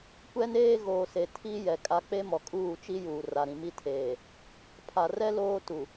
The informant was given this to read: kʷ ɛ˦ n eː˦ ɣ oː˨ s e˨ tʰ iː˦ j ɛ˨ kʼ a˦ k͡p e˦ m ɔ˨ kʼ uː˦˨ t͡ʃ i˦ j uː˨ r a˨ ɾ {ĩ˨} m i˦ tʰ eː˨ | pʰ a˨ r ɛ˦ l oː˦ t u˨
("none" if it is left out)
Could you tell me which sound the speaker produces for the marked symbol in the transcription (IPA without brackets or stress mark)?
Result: ĩ˨